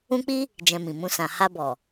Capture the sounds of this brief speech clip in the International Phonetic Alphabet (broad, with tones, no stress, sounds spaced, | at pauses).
ũ˦ k͡p i˦ | d͡ʒ ɛ̃˧ m ĩ˨ m ũ˧ s ã˨ h a˧ b ɔ˨